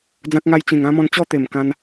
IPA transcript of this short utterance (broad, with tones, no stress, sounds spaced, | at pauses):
d͡z ã˦ k̚ ŋ a˦ j t͡ɕ ĩ˨˩ ŋ ã˦ m ɔ̃˧ n t͡ɕ ɔ˥˧ t̪ e˨˩ m k ã˧ n